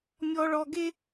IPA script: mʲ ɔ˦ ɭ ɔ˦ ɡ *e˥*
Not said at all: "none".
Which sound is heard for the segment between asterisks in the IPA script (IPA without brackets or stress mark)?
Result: e˥